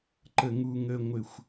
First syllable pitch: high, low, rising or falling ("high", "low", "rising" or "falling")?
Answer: low